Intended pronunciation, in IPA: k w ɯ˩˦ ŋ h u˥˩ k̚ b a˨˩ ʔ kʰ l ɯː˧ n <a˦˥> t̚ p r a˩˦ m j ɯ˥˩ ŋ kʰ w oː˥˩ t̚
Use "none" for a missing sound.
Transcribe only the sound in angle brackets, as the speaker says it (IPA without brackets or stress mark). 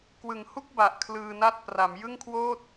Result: a˥˩